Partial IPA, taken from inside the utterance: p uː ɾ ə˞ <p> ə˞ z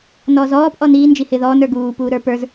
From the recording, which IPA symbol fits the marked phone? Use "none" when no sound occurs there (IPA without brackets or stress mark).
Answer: p